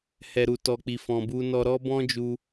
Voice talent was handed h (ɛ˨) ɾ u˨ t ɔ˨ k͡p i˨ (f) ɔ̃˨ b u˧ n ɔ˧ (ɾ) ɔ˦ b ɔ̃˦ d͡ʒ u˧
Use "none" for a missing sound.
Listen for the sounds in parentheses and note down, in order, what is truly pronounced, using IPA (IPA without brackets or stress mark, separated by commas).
ɛ˨, f, ɾ